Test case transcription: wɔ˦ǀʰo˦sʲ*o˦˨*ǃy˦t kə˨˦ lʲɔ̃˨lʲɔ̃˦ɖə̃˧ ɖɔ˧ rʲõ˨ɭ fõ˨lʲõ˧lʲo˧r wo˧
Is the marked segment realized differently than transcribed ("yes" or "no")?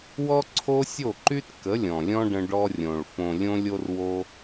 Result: no